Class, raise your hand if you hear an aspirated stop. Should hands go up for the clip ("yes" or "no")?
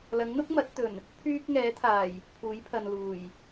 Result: yes